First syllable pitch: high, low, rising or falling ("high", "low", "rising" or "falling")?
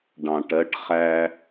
low